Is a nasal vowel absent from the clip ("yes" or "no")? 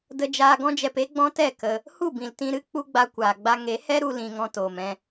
no